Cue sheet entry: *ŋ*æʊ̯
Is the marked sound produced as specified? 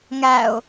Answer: yes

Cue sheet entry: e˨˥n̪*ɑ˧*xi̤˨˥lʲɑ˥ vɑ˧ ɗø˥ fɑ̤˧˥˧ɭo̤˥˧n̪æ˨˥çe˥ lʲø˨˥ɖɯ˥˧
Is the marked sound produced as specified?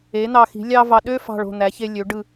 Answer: yes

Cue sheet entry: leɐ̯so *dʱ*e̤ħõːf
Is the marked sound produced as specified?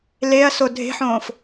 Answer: yes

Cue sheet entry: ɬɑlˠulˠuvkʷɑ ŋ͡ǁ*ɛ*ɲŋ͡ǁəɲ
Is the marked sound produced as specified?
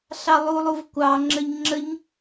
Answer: no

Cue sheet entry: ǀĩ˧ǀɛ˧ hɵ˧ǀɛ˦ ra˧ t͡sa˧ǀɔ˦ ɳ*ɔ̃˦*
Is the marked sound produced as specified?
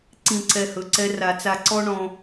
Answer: yes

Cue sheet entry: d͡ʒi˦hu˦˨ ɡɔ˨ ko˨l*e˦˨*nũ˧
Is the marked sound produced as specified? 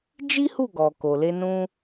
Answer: no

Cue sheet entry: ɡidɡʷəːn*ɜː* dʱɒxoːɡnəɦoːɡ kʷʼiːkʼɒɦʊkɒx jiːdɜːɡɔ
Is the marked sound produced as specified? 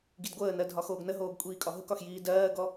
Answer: no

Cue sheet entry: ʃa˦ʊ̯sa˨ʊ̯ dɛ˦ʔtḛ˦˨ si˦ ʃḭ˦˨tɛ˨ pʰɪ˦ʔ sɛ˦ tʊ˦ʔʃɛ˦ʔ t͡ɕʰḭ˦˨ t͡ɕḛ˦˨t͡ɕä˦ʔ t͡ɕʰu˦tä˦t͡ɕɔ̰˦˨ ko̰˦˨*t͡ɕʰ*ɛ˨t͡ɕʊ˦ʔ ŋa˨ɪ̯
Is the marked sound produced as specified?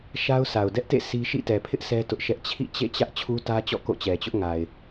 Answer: no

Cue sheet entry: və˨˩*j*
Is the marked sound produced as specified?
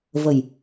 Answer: yes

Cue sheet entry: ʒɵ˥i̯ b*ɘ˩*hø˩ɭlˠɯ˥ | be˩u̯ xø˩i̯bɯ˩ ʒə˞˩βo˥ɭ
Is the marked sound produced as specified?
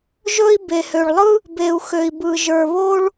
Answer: no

